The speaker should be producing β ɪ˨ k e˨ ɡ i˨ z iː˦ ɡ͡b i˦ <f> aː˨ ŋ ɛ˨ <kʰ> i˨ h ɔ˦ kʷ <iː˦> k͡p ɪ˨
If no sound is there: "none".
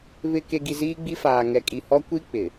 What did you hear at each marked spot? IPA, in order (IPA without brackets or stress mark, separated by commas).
f, kʼ, i˦